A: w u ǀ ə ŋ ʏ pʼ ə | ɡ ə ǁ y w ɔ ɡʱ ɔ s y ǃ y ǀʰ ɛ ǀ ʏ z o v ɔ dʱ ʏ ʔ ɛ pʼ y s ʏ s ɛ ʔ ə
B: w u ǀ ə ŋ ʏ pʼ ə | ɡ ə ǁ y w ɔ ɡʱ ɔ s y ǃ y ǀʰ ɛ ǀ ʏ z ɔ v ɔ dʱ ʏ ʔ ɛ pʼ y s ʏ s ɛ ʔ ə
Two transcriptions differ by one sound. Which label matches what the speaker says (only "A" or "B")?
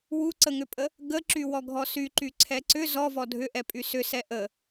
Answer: B